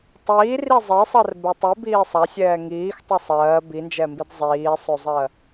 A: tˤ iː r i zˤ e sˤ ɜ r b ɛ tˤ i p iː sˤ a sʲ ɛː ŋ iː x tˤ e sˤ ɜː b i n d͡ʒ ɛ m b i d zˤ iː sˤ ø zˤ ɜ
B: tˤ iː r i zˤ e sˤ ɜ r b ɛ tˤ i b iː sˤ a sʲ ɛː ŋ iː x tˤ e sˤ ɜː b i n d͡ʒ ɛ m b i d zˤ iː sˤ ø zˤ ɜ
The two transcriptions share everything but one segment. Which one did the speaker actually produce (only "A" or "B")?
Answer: B